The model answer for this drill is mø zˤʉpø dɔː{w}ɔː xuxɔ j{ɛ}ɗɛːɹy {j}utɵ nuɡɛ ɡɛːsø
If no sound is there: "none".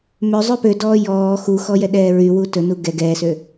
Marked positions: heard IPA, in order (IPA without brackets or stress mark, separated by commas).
j, ɛ, w